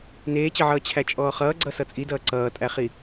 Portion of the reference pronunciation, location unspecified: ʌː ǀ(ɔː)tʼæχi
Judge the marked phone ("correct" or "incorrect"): incorrect